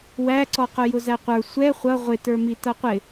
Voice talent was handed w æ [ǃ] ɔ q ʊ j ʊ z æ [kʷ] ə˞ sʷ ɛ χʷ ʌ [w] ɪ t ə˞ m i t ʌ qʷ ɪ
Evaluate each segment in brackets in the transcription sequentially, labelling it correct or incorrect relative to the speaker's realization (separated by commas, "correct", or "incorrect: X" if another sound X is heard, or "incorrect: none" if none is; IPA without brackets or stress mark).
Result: incorrect: ǀ, incorrect: qʷ, incorrect: ʁʷ